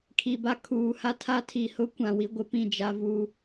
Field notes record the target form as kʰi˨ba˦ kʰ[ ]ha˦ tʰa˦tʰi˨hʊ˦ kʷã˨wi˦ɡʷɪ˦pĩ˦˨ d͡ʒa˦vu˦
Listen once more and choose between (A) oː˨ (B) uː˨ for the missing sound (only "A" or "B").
B